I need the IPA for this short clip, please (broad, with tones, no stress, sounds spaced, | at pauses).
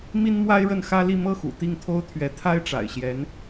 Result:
m i˥ n m w a˥ ɪ̯ ɻ ə˥˩ n x ä˥ l i˥˧ m ɤ˥˩ x ṵ˨˩ t̪ i˥˩ ŋ t̪ʰ o˥ ʊ̯ t̪ʰ ɥ ɛ˧˥ t̪ʰ a˥ ɪ̯ ʈ͡ʂ a̰˨˩ ɪ̯ ɕ j ɛ˧˥ n